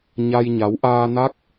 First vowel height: low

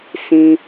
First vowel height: high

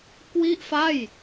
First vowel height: high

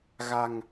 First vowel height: low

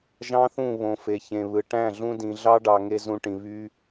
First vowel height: low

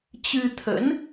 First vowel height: high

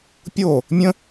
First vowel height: mid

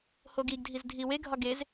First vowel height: mid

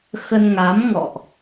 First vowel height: mid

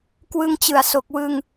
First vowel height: high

